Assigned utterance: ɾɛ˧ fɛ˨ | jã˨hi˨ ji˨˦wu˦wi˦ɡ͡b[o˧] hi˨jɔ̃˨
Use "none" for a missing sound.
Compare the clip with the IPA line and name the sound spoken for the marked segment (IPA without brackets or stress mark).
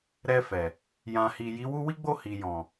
o˦˨